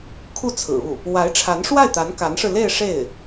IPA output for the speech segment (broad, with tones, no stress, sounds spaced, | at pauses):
kʰ u˥˩ t͡sʰ ɹ̩˨˩ u˥˩ | w a˧˥ ɪ̯ ʈ͡ʂʰ a˧˥ n ʂ w a˥˩ ɪ̯ t̪ a˧˥ n k a˧˥ n ʂ ɻ̩˧ l e˥˧ ɪ̯ ʂ e˥˩ ɪ̯